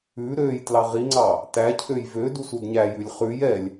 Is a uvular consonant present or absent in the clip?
present